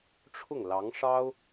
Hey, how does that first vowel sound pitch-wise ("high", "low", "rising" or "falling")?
falling